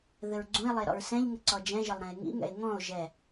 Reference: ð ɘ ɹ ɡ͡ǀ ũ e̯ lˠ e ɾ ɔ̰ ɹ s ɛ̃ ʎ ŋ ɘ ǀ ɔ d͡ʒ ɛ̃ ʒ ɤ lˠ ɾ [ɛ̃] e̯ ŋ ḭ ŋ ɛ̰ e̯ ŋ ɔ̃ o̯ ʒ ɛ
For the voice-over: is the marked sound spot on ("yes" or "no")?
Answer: yes